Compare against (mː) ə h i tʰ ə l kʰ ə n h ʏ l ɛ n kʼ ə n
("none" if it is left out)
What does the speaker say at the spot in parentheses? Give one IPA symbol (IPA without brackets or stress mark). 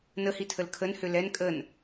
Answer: n